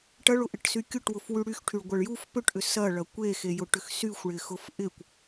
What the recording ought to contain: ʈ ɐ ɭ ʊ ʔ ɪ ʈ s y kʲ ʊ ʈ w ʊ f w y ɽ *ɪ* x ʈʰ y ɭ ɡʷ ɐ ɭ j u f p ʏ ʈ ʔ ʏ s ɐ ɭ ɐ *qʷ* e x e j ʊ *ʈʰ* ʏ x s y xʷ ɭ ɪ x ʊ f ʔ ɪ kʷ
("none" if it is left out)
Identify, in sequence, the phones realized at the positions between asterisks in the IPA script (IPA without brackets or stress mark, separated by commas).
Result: y, kʷ, ʈ